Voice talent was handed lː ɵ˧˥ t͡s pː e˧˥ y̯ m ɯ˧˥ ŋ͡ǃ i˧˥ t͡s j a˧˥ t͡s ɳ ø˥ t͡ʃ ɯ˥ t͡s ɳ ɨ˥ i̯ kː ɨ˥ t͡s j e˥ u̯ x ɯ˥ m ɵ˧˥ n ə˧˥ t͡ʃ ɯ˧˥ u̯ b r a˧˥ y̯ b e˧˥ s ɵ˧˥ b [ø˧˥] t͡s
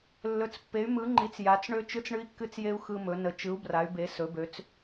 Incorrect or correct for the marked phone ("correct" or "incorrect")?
correct